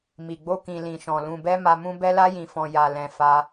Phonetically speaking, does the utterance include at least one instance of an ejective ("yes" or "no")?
no